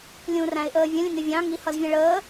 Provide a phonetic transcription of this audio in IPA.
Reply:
lʲ ũ r æ̃ ɪ̯ ʔ əː vʲ ə̃ lʲ ə̃ ŋ ɪ vʲ ɑ̃ ŋ i h ʌ z vʲ ɛ̃ ɭ əː

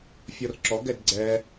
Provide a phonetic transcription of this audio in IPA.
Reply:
fʲ ɔ r ǁ ɔ ɡ ɛ d ɡ͡ǀ ɛ

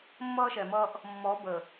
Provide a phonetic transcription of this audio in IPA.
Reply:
mː ʌː˦ ʃ ɛ˨ m ʌː˦ ʔ | mː ɔ˨˦ b ə˨

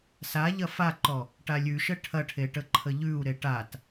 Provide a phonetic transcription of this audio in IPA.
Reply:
s a ʎ ɐ f a ǃ ɔ | ʈ a lʲ ʉ ʃ ə ʈʰ ɐ ʈʰ e ʈ ə ǃʰ ə ʎ ʉ u̯ ɾ e ʈ a t

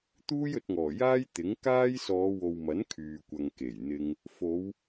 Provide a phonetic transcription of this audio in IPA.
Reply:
t̪ uː˥ j ɵ˨˥ t̚ ŋ ɔː˨˩ j aː˥ j t̪ ɪ˨˥ ŋ k aː˥ j s ɔː˨˧ w o˨ w m ɐ˨˥ n kʰ yː˨ kʷ ɐ˨ ŋ k e˨˩ j n̪ ɪ˧ ŋ | f o˨˧ w

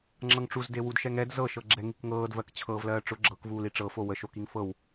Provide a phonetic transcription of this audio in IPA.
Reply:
ŋ͡ǁ ɤ ŋ ʈ͡ʂ u z d e w u d ʃ ɛ ŋ ɛ d z ɤ ʃ ɤ ɡ͡ǁ ɛ ŋ i k ŋ ɤː d v ɜ k t͡ɕʰ ɤː v l ɜː ʈ͡ʂ ʊ ɡ͡ǁ ɤ k v uː l i ʈ͡ʂ ɤ f o w ə ʃ o k i ŋ f ɤ w

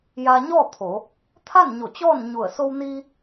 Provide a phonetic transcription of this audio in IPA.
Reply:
j a˧ ɲ ɔː˥˨ t̪ʰ o˩˧ | t̪ʰ a˥˨ n ɲ o˧˩ t͡ɕ ɔː˥˨ n ɲ u˧˩ ə̯ s o˧ w n iː˧

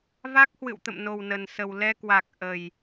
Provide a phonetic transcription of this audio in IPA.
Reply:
v a˦˥ k̚ h w ɨ̰˧˨ w t̪ ə̰˧˨ m n o˨˩ w n ə˨˩ n s ə˨˩ w l ɛ˧ k w a˨˩ k̚ ʔ ə˨˩ j

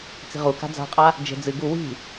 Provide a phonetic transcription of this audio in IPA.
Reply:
t͡s i̤ ʁ u k a̤ d͡z a̤ qʼ a | d͡ʒ e̤ d͡z ɨ ɡ u w i̤

